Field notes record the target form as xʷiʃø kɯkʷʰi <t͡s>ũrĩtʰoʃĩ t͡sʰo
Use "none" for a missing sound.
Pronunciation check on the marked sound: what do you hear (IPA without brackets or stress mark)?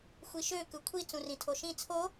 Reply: t͡s